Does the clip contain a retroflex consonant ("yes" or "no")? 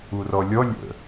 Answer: no